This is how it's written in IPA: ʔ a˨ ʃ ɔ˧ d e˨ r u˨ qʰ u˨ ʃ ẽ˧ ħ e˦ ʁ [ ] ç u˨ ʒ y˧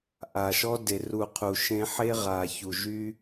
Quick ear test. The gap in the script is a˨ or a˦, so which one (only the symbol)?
a˨